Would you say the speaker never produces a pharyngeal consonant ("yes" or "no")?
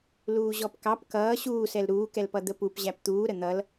yes